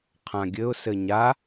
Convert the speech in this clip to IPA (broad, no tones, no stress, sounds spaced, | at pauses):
qʰ ã ɡʲ ɘ ʊ̯ s ɘ ɲ a